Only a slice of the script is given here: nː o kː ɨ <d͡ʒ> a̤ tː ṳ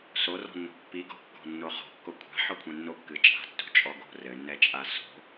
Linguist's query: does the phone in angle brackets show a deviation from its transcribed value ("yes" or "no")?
yes